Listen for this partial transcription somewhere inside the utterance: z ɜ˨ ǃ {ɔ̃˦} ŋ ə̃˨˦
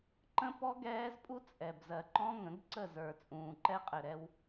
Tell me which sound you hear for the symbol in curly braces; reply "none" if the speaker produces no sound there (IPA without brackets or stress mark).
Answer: ɔ̃˦